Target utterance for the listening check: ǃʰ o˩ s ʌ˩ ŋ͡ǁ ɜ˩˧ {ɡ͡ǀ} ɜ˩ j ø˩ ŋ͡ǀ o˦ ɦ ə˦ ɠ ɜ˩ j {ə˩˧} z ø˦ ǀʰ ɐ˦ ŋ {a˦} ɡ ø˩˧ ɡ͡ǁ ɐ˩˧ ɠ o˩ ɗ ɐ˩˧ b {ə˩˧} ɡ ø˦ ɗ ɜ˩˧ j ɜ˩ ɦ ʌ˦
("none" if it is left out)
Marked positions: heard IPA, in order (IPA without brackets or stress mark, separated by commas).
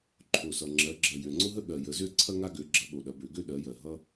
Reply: ɡ͡ǁ, ə˩˧, a˦, ø˩˧